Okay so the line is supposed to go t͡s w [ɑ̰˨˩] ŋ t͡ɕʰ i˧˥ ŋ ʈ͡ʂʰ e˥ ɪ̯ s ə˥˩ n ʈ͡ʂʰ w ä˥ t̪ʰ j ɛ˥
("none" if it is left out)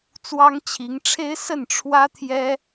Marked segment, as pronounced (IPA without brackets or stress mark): ɑ˥